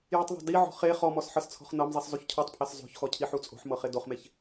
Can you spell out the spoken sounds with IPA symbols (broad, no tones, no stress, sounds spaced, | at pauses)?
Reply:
j u tˤ ðˤ o̤ d i ʕ ɔ̤ χ e χ ɔ m ɔ s ħ ɤ s t͡sʰ ɔ̤ χ n ɤ m zˤ i s zˤ u ç cʰ ɔ tˤ pʰ e s zˤ o̤ ç x ɔ cʰ i ħ u t͡sʼ o̤ ħ m ɤ χ e d o χ m e ç